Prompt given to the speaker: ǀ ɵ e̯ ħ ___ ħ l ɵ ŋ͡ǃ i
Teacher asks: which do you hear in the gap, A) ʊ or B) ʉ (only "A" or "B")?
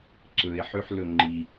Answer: B